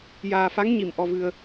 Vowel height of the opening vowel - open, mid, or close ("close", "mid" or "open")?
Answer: open